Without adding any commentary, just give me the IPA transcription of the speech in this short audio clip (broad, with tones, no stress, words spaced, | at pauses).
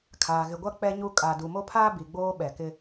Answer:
kʰaː˨ ɣɪ˨ɡʷa˦ k͡pɛ˦ɲu˦ kʼa˨du˨ mo˦pʰaː˦bi˨ ɡ͡boː˦ɓɛ˨kɪ˦